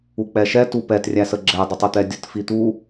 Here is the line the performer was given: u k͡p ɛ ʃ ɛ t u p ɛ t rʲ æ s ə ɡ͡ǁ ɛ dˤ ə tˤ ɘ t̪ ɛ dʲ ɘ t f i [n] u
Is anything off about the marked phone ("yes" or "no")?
yes